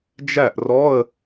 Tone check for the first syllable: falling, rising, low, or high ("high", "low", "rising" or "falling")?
falling